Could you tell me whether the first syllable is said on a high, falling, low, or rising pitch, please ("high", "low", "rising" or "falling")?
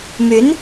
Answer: rising